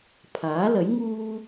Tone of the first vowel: rising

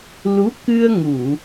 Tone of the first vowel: rising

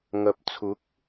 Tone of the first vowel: low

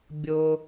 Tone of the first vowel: low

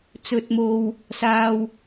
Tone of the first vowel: low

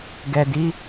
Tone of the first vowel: low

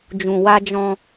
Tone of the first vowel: low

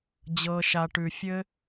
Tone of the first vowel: low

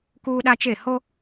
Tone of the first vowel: high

